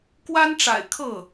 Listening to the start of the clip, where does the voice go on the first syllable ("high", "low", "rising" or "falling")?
high